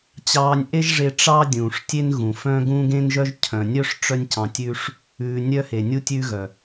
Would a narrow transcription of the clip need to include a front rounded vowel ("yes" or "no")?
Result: yes